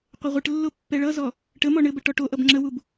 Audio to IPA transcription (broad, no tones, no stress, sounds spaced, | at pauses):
qʷ ɘ ʁʷ ɘ ʈ lː o pː ɛ ɭ ʌ z ɔ | ʈ ə m ɔ ɳ ɘ b ə ʈ ɔ ʈ o ʔ ʌ b ŋ͡ǁ ə w u b